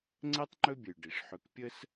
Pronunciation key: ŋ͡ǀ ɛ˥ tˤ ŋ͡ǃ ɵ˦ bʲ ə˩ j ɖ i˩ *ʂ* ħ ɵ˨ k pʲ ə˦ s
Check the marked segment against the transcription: correct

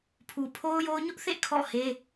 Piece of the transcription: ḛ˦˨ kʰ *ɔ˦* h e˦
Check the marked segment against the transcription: incorrect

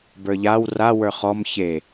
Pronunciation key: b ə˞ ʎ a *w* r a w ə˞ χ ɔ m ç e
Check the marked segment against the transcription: correct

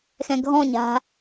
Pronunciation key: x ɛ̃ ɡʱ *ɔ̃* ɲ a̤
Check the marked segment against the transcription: correct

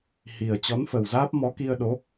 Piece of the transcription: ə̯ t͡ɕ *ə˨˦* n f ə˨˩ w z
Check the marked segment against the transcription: incorrect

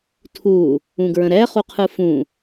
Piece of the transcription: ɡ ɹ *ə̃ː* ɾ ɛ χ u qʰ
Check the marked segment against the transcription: incorrect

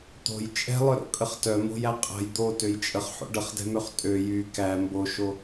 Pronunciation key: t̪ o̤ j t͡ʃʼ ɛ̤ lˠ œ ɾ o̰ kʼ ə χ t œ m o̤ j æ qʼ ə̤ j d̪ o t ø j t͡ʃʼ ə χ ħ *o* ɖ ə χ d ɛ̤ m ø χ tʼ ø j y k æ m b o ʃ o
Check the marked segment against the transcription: incorrect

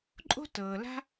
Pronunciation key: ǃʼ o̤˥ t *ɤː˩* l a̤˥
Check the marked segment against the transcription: correct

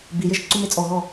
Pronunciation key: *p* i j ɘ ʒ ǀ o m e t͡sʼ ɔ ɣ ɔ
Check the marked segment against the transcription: incorrect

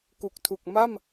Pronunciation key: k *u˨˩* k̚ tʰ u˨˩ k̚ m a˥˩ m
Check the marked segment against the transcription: correct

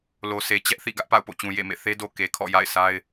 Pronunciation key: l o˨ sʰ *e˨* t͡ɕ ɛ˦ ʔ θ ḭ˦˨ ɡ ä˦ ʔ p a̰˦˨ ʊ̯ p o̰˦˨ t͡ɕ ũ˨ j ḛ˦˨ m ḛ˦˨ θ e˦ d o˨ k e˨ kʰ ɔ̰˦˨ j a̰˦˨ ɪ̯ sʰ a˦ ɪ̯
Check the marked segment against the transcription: correct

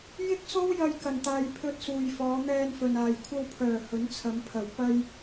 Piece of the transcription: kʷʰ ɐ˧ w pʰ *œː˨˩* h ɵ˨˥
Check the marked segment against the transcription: correct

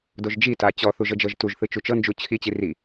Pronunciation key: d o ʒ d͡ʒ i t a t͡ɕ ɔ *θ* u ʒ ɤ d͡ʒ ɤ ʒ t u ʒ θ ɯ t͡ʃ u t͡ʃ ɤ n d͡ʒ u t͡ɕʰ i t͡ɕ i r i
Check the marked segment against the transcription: correct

